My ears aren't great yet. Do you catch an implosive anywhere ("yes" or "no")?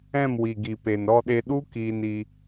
yes